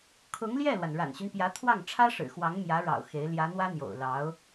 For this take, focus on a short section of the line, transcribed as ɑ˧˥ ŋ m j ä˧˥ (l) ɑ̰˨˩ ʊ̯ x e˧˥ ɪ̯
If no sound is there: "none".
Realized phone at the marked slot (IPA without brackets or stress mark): ɻ